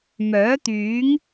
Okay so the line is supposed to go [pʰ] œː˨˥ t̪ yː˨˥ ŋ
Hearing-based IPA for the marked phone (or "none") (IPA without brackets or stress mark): m